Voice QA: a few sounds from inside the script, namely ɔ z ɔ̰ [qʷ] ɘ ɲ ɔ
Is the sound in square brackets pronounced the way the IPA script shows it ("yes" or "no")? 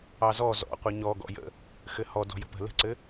yes